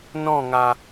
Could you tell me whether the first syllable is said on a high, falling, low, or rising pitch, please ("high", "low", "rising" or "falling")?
falling